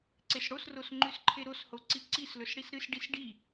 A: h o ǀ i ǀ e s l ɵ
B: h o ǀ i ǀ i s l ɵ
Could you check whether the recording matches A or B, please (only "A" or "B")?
B